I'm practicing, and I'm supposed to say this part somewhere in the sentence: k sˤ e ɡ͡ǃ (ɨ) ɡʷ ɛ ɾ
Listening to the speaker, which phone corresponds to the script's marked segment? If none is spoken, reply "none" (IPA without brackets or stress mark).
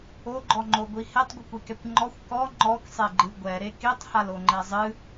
ɨ